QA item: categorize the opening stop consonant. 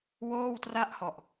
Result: plain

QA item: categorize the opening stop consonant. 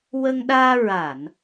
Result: implosive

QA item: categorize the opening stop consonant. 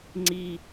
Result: click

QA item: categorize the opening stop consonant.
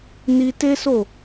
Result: plain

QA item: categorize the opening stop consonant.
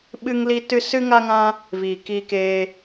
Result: implosive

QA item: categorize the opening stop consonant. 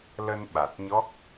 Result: implosive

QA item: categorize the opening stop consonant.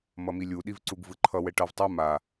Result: implosive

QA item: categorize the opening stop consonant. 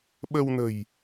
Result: implosive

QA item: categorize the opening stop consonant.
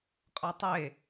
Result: ejective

